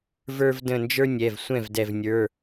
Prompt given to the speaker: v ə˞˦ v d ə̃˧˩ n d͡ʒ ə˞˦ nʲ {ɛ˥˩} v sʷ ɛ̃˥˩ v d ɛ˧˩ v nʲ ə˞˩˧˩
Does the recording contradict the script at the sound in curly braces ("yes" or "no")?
yes